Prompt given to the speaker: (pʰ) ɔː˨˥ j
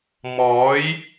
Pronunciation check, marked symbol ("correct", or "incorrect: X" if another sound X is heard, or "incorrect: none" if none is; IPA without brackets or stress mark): incorrect: m